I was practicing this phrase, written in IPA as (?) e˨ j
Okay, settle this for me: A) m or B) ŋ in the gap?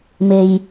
A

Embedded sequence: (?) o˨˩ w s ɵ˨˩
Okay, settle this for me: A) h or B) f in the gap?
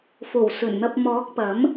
B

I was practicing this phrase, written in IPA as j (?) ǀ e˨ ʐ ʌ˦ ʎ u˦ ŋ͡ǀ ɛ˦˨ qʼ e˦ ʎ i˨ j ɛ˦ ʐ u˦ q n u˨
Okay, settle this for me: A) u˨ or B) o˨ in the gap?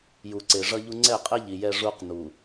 A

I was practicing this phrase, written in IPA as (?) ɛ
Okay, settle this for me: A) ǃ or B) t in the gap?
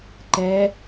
A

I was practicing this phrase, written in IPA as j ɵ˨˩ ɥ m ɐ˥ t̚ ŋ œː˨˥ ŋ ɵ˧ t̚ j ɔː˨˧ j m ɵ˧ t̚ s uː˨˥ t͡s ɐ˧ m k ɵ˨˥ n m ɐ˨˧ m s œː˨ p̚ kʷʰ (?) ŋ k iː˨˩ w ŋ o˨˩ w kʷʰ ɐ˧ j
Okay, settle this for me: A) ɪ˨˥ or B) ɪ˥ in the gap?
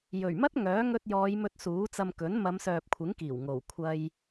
A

